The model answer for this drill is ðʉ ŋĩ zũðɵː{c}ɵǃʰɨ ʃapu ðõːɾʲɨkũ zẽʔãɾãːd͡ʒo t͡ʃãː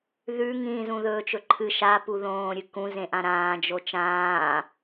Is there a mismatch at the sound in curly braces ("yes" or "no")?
yes